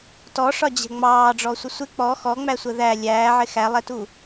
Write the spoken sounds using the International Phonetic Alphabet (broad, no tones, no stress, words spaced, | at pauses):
tɔʂɒd͡ʑɛ̤ ŋ͡mɑːɖ͡ʐɔsʷə sʷɪ k͡pɔ xɔŋ͡mæsʷə ðæ lʲæːʕɪ xælˠɛtu